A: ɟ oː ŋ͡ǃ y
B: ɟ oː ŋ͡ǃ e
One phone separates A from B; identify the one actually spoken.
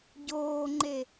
B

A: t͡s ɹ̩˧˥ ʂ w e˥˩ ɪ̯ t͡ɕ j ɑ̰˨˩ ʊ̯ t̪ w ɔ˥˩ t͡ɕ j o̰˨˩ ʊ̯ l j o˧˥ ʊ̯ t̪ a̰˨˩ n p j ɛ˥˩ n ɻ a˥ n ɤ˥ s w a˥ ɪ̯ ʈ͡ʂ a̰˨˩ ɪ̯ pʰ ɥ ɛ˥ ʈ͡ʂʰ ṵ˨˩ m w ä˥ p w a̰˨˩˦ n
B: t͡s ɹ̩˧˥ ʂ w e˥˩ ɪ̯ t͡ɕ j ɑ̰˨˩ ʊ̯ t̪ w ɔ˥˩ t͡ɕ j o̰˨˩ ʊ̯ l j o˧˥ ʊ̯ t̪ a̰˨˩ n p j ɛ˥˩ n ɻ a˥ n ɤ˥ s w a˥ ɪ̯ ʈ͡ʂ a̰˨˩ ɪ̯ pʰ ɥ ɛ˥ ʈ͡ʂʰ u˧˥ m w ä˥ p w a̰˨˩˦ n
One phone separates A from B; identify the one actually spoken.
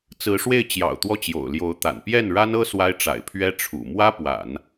A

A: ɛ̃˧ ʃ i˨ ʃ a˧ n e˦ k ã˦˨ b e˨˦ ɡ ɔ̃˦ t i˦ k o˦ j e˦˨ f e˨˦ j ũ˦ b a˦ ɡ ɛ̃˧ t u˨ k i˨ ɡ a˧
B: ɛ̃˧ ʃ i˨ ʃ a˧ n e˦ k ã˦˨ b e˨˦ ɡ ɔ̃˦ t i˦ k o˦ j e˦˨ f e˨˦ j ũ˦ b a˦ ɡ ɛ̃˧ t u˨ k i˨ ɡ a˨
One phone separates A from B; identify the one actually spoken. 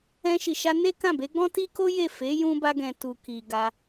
A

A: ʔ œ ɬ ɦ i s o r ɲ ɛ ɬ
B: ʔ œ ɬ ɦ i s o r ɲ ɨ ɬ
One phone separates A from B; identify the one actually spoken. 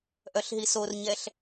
A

